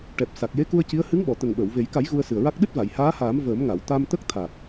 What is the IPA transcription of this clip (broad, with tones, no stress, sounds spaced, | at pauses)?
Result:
ʈ ɛ˨˩ p̚ s a˨˩ k̚ j e˧˥ k u˧ ə̯ c i˧˥ ə̯ h ɨ˧˥ ŋ ɓ ɔ˨˩˨ t̪ ə˨˩ ŋ ɓ əː˨˩˨ w v e˨˩˦ j k a˨˩˦ j ɣ u˧ ə̯ s ɨ˨˩ ə̯ ɹ a˦˥ k̚ ɗ ɨ˦˥ t̚ v a˨˩˨ j h aː˧˥ h aː˨˩˦ m v əː˨˩˦ m ŋ a˨˩˨ w t̪ a˧ m t̪ ə˦˥ k̚ t̪ʰ a˨˩ k̚